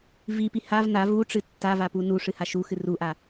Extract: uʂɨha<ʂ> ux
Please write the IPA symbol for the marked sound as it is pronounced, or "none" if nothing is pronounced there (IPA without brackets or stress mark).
ʃ